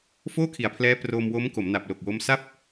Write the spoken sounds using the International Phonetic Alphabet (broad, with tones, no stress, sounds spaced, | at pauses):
f oː˥˩ kʰ i˩˦ a̯ pʰ l ɛː˦˥ p r o˧ m w o˦˥ m k o˩˦ m n a˨˩ p̚ l o˨˩ k̚ w o˦˥ m s a˥˩ p̚